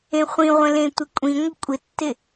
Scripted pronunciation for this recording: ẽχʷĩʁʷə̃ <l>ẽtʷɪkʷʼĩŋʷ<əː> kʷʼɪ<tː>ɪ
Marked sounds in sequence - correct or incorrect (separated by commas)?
correct, incorrect, correct